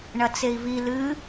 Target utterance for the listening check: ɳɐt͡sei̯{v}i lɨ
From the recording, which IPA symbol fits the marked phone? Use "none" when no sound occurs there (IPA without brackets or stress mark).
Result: v